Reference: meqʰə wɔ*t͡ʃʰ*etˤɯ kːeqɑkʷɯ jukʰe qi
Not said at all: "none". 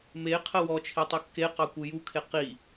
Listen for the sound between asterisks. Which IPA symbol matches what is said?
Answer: t͡ʃʰ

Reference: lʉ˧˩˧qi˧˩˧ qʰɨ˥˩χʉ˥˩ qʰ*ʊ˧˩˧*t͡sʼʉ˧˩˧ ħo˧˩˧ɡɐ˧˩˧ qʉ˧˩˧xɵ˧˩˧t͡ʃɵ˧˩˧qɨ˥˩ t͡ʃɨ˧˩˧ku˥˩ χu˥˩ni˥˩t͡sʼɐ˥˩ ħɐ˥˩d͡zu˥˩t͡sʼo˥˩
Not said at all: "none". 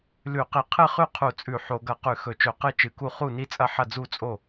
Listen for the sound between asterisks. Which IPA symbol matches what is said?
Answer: u˧˩˧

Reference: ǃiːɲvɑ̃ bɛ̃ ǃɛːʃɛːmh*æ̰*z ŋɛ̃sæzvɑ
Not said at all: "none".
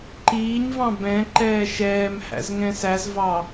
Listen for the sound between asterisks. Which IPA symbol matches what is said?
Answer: æ̰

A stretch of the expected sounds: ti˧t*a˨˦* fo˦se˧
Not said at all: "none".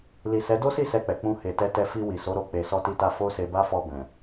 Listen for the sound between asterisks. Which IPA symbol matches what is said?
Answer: a˧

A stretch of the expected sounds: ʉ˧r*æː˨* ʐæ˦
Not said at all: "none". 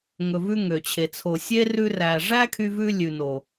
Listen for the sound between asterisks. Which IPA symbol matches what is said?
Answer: æ˨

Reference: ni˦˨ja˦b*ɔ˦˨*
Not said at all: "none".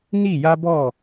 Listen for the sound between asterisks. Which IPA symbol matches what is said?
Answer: ɔ˦˨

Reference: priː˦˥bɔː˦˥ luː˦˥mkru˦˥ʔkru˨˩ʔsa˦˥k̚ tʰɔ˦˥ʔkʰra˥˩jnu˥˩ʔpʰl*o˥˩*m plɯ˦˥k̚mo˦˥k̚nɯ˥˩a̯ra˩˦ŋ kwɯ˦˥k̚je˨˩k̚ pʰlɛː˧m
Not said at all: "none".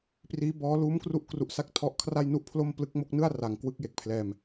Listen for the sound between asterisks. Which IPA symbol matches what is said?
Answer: o˥˩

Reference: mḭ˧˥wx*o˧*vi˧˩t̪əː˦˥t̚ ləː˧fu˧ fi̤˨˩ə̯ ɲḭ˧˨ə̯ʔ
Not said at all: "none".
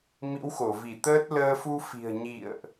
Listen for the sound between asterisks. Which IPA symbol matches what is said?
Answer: o˧˩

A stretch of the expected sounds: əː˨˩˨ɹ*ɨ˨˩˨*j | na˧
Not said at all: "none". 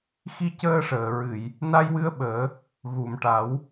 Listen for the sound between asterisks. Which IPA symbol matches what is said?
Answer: ɨ˨˩˨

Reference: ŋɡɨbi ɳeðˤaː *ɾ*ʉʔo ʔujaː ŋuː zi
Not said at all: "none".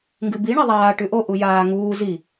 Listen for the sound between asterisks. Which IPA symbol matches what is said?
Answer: ʈ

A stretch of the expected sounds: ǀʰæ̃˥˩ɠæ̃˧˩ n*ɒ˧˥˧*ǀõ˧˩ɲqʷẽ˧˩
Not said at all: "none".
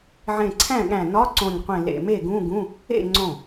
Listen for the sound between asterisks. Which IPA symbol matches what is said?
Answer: ɒ˧˥˧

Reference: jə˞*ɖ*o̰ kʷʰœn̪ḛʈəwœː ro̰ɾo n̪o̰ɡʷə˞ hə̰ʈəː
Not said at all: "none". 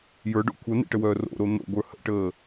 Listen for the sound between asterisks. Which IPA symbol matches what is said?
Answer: ɖ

